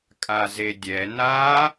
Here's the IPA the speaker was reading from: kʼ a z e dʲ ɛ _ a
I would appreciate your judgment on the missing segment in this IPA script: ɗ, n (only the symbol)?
n